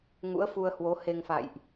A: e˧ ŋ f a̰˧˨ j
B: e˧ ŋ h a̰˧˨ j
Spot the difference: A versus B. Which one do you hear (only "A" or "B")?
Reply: A